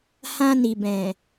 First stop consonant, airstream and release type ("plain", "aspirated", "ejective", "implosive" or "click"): plain